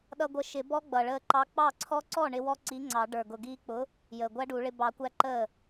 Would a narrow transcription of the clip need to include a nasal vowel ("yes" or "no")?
no